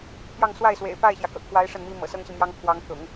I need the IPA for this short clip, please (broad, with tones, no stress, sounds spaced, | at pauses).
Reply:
pʰ j ɑ˥˧ ŋ s w a˥˩ ɪ̯ s w ḛ˨˩ ɪ̯ p a˥˩ ɪ̯ ɕ j ä˩ k ɤ̰˨˩ kʰ w a˧˥ ɪ̯ ʂ ə˥˩ n m i˥ m ɤ̰˨˩ s ɤ˥ ŋ ɕ i˨ m j ɑ˥ ŋ pʰ w ɑ˧˥ ŋ t̪ ʊ̰˨˩˦ ŋ